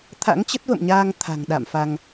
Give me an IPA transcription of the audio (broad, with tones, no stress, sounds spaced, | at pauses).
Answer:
t̪ʰ a̰˧˥ ŋ t͡ɕ ə˦˥ t̚ v ə̰˧˨ m ɲ aː˧ ŋ t̪ʰ a̤˨˩ ŋ ɗ a̰˧˨ m f a˧ ŋ